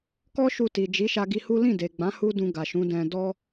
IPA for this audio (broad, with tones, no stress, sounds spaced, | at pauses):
k ɔ˦ ʃ u˧ t i˨ d͡ʒ i˨˦ ʃ a˧ ɡ i˧ h u˦ l ĩ˦˨ d e˨ ɡ͡b ã˨˦ h u˦ d ũ˧ ɡ a˨ ʃ ũ˨˦ d ɛ̃˧ d ɔ˦